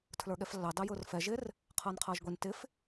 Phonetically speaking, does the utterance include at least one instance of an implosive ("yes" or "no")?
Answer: yes